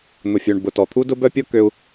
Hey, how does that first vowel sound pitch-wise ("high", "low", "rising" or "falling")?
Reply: low